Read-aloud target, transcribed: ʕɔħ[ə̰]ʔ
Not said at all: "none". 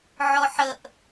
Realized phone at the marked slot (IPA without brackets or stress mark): ə